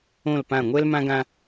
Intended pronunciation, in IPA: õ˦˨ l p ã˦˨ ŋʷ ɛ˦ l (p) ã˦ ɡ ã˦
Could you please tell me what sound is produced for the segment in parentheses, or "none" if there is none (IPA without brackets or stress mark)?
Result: m